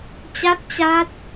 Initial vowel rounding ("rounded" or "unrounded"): unrounded